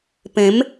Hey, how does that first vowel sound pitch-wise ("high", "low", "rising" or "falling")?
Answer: rising